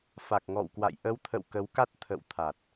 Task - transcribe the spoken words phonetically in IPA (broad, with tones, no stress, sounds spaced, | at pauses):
f a˨˩ k̚ ŋ ɔ̰˧˨ w k w a̰˧˨ j ʔ ə˨˦ w t̪ʰ ə̰˧˨ w k ə˨˦ w k a˦˥ t̚ t̪ʰ ə̰˧˨ w t̪ʰ a˨˩ t̚